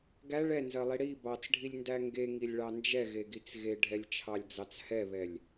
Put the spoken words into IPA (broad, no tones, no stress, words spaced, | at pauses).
ɡæɭ ɛnzɜlˠi ɽi bɑt͡sɖʱilʲndæ ŋɡeŋilʲɭɑ nd͡ʒɛɣeɡit͡s ɣeɖʱɛlʲt͡ʃʰɑlʲd͡zɑt͡s hɛβɛlʲ